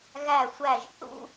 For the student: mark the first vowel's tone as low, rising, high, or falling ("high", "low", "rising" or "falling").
falling